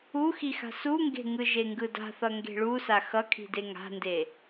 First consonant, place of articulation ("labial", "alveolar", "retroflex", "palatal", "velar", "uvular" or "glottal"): velar